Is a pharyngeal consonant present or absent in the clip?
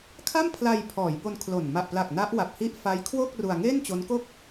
absent